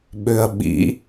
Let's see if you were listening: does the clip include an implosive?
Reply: yes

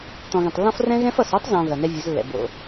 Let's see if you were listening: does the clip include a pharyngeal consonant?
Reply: no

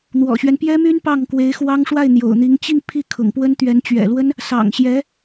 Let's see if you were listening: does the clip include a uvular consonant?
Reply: no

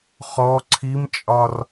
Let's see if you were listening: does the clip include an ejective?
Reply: yes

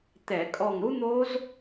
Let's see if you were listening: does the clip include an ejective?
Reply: yes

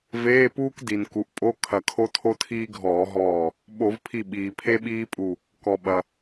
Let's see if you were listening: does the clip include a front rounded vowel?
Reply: no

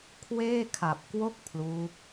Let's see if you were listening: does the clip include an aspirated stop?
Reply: yes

